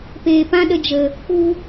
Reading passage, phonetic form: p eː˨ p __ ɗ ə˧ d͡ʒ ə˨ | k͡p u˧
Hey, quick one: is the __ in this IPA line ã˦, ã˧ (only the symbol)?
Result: ã˦